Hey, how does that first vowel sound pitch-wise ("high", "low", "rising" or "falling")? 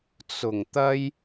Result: low